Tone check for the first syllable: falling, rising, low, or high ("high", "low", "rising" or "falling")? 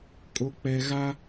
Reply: low